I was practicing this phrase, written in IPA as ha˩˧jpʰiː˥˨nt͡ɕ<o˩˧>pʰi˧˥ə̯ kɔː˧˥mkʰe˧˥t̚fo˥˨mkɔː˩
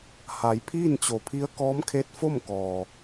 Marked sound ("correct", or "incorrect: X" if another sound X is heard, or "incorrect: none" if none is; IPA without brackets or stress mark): correct